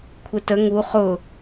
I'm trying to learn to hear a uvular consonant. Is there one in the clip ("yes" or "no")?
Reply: yes